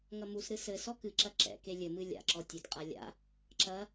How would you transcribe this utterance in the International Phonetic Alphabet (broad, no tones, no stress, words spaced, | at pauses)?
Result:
ŋɐmusɾɨ sɘsɔ kɨǁɐ ǁɛ̰ke lʲɘmɨ lʲa̰ǁɔ tʲetqʼa lʲa̰ | ǁɐ